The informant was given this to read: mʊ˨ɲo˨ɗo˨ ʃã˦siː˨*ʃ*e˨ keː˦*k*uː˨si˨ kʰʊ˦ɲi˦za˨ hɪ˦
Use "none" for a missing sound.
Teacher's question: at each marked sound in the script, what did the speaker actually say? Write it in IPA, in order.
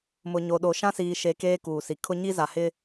ʃ, k

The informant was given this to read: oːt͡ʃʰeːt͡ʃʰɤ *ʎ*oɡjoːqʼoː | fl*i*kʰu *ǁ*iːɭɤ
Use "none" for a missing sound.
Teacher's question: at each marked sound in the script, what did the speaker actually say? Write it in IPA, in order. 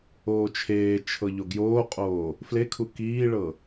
ʎ, e, k

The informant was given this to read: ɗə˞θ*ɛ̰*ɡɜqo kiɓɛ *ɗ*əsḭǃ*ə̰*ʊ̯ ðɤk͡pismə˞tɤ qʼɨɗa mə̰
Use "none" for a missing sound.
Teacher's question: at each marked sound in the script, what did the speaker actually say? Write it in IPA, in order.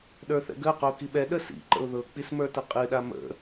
ɛ̰, ɗ, ə̰

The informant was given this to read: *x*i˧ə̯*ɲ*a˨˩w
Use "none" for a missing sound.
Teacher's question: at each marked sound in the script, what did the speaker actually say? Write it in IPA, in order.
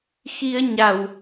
x, ɲ

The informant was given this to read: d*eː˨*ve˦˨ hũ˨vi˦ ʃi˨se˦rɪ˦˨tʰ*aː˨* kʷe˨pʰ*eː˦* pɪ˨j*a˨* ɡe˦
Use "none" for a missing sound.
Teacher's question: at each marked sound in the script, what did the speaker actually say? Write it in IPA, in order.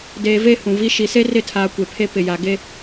eː˨, aː˨, e˦, a˨

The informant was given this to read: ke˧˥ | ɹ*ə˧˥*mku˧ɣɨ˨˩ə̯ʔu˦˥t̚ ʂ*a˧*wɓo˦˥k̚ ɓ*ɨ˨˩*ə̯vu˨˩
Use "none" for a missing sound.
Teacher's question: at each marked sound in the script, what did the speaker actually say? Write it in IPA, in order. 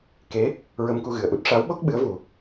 ə˧, a˧˥, ɨ˧˥

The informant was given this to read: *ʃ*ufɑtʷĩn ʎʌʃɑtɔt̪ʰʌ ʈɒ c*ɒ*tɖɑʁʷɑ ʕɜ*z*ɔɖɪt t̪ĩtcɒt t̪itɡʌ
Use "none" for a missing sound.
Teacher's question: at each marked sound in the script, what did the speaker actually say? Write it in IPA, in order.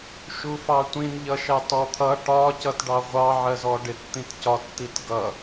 ʃ, ʌ, z

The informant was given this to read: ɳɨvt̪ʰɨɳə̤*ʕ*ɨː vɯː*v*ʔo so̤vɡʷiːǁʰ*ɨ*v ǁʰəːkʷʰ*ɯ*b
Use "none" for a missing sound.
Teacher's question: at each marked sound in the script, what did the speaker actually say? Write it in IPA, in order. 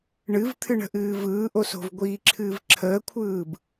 ʔ, none, ɨː, ɯː

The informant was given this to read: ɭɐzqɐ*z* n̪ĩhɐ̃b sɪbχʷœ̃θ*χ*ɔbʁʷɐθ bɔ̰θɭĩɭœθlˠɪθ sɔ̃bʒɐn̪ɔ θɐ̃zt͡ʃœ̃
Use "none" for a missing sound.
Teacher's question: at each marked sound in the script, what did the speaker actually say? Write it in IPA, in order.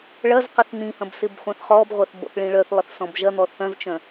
θ, χ

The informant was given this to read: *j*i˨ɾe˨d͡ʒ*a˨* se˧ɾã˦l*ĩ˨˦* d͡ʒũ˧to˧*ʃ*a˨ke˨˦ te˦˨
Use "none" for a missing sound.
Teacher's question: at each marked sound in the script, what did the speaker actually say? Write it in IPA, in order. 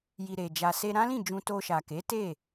j, a˨, ĩ˦˨, ʃ

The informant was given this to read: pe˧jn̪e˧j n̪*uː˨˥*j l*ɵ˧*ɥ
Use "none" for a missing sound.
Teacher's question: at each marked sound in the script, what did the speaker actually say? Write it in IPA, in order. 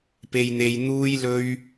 uː˥, ɵ˥

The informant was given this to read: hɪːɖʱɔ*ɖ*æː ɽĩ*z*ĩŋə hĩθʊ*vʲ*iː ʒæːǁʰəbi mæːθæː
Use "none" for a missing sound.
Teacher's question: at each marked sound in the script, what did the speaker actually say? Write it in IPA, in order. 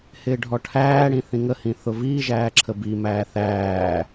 ʈʰ, θ, v

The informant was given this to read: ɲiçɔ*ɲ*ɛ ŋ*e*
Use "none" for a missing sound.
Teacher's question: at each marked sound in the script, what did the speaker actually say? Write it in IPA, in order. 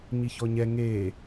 ɲ, e

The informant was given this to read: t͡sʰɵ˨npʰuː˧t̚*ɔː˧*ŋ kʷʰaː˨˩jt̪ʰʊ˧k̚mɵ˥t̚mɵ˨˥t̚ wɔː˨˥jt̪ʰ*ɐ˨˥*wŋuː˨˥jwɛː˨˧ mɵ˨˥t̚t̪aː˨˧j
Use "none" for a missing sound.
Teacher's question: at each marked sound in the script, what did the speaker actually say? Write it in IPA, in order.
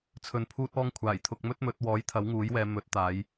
ɔː˧, ɐ˨˥

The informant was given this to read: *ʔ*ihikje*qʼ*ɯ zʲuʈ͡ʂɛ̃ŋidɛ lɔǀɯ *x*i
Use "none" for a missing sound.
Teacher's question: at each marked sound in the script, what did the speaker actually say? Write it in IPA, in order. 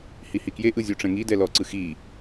h, ʔ, x

